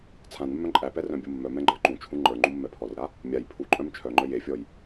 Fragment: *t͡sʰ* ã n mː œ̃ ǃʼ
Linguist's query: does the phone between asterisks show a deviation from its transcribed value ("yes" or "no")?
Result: no